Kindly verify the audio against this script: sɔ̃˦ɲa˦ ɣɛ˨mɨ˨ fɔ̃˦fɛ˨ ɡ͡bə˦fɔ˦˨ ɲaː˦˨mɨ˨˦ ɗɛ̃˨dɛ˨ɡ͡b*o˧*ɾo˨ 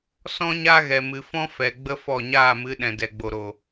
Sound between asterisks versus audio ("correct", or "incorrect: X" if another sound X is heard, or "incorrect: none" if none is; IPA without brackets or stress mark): incorrect: o˨